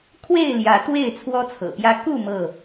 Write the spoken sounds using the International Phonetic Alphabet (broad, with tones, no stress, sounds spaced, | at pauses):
kʰ w e˥˨ ɪ̯ l j ä˨˦ t̪ w e˥˨ ɪ̯ t͡sʰ w ɔ˦ t͡sʰ ɤ̰˨˩ p j ä˦ k u˥˨ m ɤ˥˨